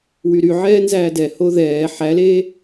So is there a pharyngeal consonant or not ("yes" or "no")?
yes